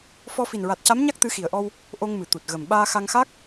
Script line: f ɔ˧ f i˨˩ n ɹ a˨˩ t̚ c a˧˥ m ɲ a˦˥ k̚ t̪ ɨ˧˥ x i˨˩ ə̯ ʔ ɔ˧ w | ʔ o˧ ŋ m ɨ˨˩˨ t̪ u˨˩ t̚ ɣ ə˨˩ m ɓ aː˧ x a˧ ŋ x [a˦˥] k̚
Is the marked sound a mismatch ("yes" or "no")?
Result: no